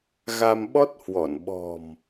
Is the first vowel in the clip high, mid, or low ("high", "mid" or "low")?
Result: low